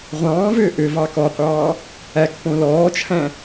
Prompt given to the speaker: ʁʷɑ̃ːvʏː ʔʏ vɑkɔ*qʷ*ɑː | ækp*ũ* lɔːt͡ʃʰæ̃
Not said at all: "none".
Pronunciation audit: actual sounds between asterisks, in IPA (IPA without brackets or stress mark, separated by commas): qʷ, õ